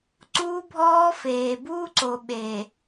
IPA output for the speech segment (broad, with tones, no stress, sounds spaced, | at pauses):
ǀ uː˦ bʱ ɔː˦ f eː˨ b uː˦ ǀ o˨ ɓ eː˨